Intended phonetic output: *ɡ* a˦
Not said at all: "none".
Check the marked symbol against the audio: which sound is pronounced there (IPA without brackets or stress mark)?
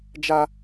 d͡ʒ